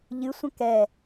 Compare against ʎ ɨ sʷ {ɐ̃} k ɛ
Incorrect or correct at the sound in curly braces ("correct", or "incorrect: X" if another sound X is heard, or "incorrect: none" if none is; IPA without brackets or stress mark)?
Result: correct